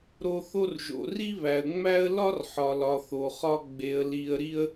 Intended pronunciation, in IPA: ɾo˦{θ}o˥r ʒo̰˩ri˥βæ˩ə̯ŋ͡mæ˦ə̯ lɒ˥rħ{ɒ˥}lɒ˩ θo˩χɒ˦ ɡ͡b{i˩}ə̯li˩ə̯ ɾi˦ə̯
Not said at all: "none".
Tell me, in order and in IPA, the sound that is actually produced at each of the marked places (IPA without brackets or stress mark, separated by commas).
θ, ɒ˩, e˩